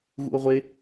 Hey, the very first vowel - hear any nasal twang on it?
no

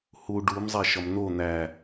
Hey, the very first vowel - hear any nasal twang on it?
no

